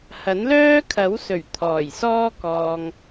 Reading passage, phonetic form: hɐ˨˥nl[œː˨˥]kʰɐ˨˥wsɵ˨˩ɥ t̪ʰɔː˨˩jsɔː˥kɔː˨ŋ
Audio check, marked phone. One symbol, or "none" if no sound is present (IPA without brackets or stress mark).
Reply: œː˥